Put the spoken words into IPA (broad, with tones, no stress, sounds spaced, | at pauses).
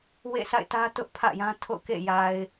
w ḛ˦˨ s a̰˦˨ ɪ̯ t ä˦ t ʊ˦ ʔ pʰ ä̰˦˨ j ã˦ tʰ o̰˦˨ ʊ̯ k ḛ˦˨ j a˨ ɪ̯